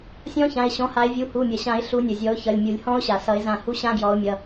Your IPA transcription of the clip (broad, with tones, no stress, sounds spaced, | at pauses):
sʲ ɔ̃˦˥ ç ã˩˧˩ ɪ̯ ɕ ɔ̃˨˦ h a˨˦ ɪ̯ vʲ u˩˧˩ h u˩˧˩ mʲ ʌ˩ ɕ ã˨˩˦ ɪ̯ ɬ u˨˦ nʲ ʌ˩ zʲ ɔ˨˦ ʊ̯ ç ʌ˩˧˩ lʲ mʲ u˨˩˦ lʲ h ɔ̃˦˥ ʊ̯ ɕ a˩ s ʌ˨˩˦ ɪ̯ z ã˧˩ h u˦˥ ɕ ã˦˥ ɡ j ɔ˨˦ ʊ̯ mʲ ʌ˩˧˩